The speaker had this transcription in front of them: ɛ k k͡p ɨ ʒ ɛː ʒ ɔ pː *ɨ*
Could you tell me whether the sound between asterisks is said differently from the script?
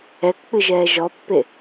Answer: yes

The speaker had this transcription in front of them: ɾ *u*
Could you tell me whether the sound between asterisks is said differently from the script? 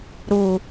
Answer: no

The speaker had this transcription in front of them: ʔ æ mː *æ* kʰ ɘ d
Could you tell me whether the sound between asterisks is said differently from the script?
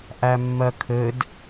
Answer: yes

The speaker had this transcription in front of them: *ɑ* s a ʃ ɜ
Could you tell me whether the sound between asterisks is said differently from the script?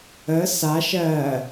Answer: yes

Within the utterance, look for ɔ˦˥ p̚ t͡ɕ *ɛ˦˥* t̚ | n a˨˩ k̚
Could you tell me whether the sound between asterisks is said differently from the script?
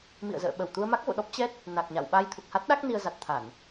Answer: no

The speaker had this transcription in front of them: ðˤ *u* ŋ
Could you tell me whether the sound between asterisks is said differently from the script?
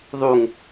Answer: no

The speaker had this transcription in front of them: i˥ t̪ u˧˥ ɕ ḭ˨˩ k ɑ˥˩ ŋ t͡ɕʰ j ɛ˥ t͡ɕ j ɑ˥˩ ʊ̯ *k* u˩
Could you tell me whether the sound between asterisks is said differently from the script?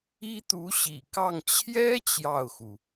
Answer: yes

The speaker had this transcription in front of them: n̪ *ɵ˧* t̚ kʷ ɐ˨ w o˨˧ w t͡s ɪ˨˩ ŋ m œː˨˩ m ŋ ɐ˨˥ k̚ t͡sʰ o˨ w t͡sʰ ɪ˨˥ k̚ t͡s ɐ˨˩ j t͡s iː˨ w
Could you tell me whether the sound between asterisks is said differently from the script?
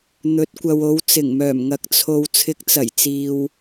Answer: yes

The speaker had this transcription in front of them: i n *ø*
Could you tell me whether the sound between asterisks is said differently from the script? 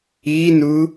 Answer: yes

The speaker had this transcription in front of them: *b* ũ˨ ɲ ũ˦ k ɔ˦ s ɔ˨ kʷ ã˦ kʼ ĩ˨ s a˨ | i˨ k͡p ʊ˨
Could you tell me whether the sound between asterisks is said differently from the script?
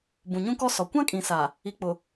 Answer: no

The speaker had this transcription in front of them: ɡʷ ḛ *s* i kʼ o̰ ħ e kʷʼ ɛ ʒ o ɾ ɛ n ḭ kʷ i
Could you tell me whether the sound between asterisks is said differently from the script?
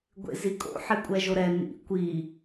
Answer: yes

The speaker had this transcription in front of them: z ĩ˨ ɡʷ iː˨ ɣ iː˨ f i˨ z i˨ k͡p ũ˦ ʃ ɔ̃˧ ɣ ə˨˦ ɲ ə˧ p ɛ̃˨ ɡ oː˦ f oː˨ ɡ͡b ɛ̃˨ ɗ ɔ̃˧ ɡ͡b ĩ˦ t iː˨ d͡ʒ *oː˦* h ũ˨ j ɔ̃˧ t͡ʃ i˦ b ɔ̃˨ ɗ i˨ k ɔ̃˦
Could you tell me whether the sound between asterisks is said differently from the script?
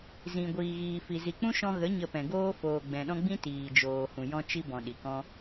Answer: yes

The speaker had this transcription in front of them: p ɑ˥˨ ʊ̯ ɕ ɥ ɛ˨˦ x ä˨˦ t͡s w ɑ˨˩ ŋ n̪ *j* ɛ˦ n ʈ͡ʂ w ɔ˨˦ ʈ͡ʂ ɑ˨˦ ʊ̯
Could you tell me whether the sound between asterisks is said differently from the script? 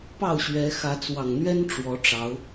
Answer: yes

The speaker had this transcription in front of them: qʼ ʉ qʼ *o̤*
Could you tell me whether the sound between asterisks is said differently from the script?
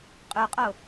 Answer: yes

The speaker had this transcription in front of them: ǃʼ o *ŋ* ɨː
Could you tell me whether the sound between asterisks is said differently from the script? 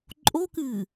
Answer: yes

